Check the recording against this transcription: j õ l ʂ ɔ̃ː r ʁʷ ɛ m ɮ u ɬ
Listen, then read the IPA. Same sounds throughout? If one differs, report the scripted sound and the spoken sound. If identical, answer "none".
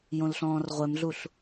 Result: ʂ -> ɬ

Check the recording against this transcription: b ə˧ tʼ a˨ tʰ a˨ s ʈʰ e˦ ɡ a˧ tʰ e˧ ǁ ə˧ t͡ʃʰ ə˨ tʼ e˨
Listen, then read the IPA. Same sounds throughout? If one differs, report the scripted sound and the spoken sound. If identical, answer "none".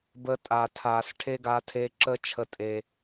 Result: none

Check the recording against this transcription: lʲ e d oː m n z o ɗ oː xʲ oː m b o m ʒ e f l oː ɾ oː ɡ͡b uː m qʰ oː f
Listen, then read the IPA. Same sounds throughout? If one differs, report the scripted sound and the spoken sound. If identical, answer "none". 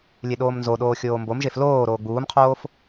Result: d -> ɗ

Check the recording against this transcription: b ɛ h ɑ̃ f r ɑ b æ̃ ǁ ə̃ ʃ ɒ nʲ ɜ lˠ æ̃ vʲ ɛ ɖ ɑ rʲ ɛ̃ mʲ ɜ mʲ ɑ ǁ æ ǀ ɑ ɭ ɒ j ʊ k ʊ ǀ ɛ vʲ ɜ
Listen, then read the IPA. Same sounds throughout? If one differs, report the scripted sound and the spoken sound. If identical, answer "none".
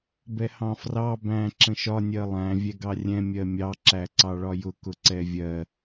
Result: ɖ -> ɡ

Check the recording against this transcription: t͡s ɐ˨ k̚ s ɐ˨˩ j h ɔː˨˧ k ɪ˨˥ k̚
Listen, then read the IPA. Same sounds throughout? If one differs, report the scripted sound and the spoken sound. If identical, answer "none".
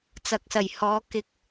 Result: none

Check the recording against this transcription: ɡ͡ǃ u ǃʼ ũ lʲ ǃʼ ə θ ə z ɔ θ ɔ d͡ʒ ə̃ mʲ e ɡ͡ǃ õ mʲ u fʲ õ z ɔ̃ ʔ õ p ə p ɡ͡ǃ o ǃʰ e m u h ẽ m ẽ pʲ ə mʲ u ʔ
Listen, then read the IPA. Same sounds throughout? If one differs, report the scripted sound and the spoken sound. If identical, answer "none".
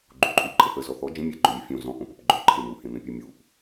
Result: ũ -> u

